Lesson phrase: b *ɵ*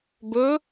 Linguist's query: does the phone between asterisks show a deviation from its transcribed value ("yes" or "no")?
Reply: no